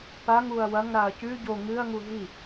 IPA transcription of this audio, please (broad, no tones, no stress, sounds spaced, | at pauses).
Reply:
p a ŋ u ɐ̯ w ɐ ŋ ɾ a ɐ̯ c ʉ ɟ o ŋ ɨ ɐ̯ ŋ u ɦ i